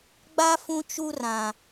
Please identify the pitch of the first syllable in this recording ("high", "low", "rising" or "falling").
high